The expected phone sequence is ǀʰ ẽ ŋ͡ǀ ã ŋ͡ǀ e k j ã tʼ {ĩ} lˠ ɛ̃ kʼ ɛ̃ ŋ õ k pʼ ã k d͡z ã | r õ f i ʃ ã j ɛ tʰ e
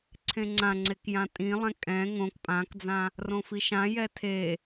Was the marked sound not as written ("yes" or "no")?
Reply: no